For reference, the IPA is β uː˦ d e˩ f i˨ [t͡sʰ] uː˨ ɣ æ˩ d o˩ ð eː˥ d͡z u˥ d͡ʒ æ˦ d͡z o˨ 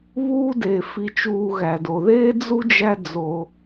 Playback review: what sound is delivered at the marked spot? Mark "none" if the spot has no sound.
t͡ʃ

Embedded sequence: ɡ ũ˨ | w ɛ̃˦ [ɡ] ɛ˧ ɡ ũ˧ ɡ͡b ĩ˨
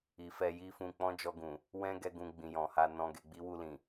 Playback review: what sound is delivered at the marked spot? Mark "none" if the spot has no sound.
ɡ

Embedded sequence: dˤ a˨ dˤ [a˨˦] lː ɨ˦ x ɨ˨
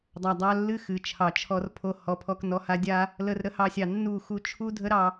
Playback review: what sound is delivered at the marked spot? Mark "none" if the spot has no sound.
a˧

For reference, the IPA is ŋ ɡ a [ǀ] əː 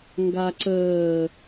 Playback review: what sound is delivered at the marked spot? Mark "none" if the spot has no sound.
ǀ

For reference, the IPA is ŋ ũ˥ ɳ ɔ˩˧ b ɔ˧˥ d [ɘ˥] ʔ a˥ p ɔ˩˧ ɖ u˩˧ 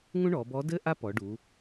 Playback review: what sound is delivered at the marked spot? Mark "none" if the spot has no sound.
ɘ˥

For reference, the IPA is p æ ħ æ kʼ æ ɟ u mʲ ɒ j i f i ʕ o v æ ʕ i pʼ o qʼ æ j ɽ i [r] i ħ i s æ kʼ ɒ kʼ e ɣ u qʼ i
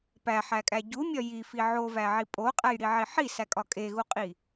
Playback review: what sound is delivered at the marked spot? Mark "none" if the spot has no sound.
ʕ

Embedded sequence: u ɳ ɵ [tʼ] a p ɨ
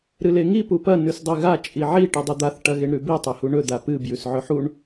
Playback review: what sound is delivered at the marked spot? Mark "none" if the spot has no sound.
d̪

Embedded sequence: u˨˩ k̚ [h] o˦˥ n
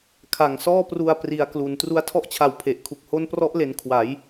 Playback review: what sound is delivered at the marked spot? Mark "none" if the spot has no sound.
h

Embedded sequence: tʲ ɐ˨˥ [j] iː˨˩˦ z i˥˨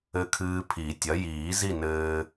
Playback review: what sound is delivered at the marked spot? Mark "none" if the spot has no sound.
j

